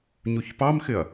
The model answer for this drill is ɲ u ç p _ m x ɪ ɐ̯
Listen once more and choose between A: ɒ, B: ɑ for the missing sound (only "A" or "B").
B